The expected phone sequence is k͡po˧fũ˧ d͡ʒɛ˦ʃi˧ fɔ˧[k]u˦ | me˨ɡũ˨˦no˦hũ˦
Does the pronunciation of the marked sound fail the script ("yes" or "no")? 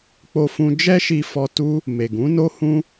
yes